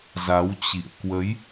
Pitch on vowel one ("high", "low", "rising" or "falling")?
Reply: rising